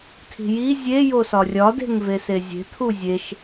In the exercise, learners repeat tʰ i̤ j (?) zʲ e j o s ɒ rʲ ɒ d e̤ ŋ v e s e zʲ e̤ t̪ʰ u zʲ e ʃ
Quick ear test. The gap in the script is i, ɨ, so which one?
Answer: i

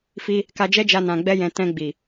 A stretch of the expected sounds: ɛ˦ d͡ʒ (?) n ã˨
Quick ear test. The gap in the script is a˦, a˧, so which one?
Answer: a˧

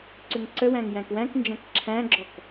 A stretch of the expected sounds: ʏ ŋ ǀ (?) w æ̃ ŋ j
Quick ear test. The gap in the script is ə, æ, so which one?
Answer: ə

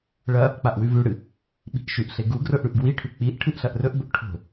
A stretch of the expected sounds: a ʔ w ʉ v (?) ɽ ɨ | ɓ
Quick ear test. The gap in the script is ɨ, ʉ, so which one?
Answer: ʉ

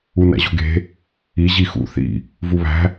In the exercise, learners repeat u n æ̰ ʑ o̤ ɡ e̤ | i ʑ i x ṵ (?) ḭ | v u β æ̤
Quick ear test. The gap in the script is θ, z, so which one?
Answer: θ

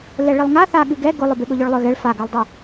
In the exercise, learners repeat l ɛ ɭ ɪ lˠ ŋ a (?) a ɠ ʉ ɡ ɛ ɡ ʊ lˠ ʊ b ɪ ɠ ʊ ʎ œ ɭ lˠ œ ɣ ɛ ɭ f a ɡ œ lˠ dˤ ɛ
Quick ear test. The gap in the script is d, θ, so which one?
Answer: θ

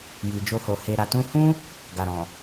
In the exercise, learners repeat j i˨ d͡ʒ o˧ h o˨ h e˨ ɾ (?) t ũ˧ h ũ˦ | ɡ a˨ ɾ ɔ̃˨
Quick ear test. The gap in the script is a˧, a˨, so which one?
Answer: a˨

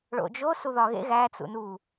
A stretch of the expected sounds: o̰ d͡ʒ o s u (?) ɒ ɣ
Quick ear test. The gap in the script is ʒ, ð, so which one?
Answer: ð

